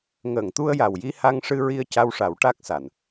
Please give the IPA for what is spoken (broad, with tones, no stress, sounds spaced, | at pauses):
ŋ əː˨˩˨ ŋ t̪ u˧ ə̯ j a˨˩ w j i˧ h a˧ ŋ ʂ ɨ˧ ɹ i˧ ə̯ c a˧ w ʂ a˨˩˦ w ʈ a˦˥ k̚ s a˨˩˨ n